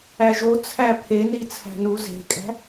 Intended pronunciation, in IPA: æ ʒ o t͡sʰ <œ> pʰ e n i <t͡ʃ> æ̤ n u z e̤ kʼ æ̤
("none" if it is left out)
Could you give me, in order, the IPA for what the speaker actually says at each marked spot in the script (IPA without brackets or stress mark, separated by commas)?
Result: æ, t͡sʰ